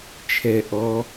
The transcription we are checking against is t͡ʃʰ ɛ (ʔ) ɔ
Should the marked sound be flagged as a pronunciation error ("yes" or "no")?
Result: no